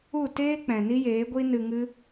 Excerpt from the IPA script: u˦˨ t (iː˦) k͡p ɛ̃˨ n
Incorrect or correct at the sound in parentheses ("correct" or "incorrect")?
incorrect